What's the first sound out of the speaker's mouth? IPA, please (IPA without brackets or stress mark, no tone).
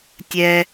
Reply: tʲ